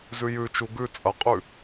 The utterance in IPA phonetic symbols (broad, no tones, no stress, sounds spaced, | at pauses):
z ʉ j ʉ t͡ʃ u ɡ ʉ t͡sʼ ɐ qʼ ʉ